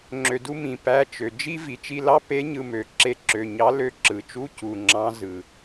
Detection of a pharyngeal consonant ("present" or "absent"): absent